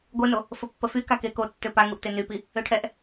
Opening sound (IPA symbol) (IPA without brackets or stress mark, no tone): ɡʷ